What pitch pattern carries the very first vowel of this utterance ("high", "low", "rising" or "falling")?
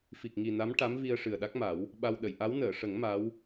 low